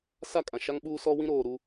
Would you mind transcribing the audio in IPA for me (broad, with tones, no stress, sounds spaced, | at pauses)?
s a˦˨ kʼ ã˨ ʃ a˦ ŋ ɓ uː˦ s ɔ˦ w ĩ˦ ɾ oː˨ ɾ u˦